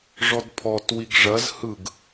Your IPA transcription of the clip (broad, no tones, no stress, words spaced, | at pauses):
ʐɔdpʰɔt wiɡʐɐz hɯɡ